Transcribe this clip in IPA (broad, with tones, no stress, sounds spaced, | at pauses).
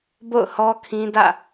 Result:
b o̰˦˨ ʊ̯ h ɔ˦ kʰ ĩ˦ d ä̰˦˨